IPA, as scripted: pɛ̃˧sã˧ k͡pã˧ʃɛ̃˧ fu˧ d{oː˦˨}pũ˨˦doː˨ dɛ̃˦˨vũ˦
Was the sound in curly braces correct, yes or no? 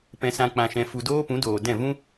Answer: no